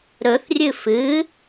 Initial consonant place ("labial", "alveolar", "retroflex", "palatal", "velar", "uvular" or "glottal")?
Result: alveolar